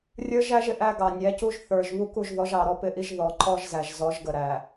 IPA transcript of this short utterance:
rʲə˞˦ʒ æ˦ʒɪ˨ʔæ˦ ɡɑ˨nʲæ˨˦cu˦ʒ θə˞˨ʒ βu˦ku˦˨ʒðɔ˨˦ʒ ɑ˨ɾɔ˦pɪ˦ʔi˦ʒ ðɔ˨ ǃɔ˦ʒzæ˨ʒzɔ˨˦ʒɡə˨ ɾæ˨

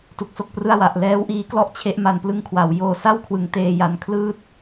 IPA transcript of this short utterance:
tu˨˩k̚so˥˩k̚prɯ˥˩a̯ wa˨˩ʔlɛː˦˥wʔiː˦˥ klɔ˥˩ʔt͡ɕʰe˦˥ʔma˧n plɯ˦˥ŋkʰwa˩˦wjoː˧ sa˥˩wkʰwɯ˨˩ŋteː˧ ja˧nkʰlɯː˥˩t̚

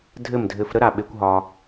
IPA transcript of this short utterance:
dʱɘ˥˩mdʱɘ˧f ɾə˥ɾa˩ɓe˧kʷ ɦɒ˧

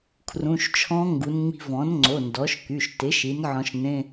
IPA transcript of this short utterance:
kʰrũ˩˧˩ʃt͡ʃʰɔ̃˧˥ŋɡu˩˧n ŋ͡mi̤˧vɔ̃˩˥nŋ͡ǀo˩˧˩ ndɔ˩˥ʃky˩˧˩ʃ tɪ˩˥ʃi˩˥nʕɔ̃˧ʃnẽ˧˥˧

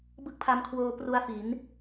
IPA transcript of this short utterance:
bɯ˦˥k̚pʰa˧mkʰwoː˧ pru˦˥a̯fi˩˦n

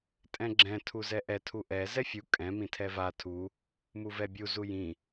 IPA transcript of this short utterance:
tʼɛ̃ɡ͡ǁɛ̃ tʰuzɛʔɛ tʰuʔɛ zɛfʲu kʼɛ̃ mĩtʰɛva tʰu | muvɛbʲu zujĩ

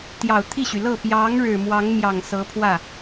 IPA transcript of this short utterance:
t̪jɑ˨˩ʊ̯ t̪ʰi˥˩ɕy˩lɤ˥˩ pjɑ˧˥ŋɻɻ̩˨˩ mwɑ˧˥ŋmjɑ˨˩ŋ sɤ˧˥pʰwä˥˩

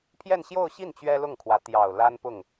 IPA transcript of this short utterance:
pʰjɛ˥˧nɕjo˥˧ʊ̯ɕi˥˩n t͡ɕɥɛ˥lʊ˥˩ŋkʰwä˧˥ t̪jɑ˨˩ʊ̯ la˥npʊ˥˩ŋ

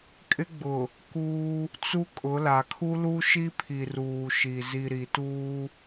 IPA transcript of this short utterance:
kʼɪ˦ɡ͡bʊ˨ | kuː˦ | t͡su˦kʼʊ˨˦la˨ kʰu˦lu˦ʃi˦pʰi˨ ruː˨ ʃi˨ zi˨ ɾi˨tuː˦

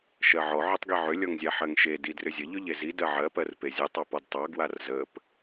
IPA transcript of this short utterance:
ʃɜʕɔ ʕɵtˤɡiʕʏ lʲɔŋzʲaħɜŋʃe didrʏzʲə ʎʏʎezi dɜʕɜ pɜrpezʲə tˤɑpɔdtˤɑ ɡwarzəp

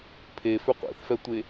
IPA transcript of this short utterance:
pʰefʏ qʷḛθfɛtʷe

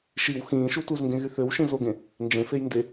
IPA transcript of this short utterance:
ʃiw xĩːʃu tuzŋɡẽ ɣyθøwʃĩ zoɡẽ | nd͡ʒẽfej nde

